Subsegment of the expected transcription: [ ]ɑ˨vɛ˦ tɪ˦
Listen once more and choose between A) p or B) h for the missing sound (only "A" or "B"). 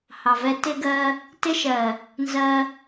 B